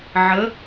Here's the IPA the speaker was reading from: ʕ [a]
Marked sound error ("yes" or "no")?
yes